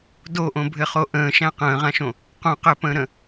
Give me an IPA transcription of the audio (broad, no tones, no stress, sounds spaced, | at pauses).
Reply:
d o ʔ õ bʱ ɘ χ o ʔ ə̃ː ʃ æ̃ q ə̃ː ʁ ã ʃ õ | q õ q ɘ p ə̃ː ɾ ə̃